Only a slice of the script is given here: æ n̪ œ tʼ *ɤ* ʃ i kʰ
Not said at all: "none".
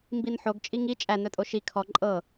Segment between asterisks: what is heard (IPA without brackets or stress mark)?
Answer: o